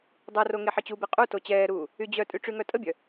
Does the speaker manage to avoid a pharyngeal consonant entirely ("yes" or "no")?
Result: no